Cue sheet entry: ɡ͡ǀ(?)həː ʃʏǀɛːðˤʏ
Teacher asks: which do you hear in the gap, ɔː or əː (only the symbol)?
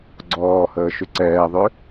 ɔː